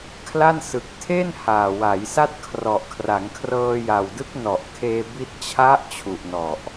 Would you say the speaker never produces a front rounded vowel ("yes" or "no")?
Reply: yes